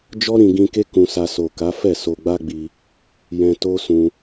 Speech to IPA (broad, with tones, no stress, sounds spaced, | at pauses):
d͡ʒ ɔ˦ ɾ ĩ˧ ɡ ĩ˧ k e˦ k ũ˧ s a˧ s o˨ k a˨˦ f ɛ˦˨ s o˧ ɡ͡b a˦ ɡ͡b i˧ | j ɛ̃˧ t o˦ s ũ˧